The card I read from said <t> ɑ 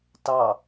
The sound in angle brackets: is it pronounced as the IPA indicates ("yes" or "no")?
yes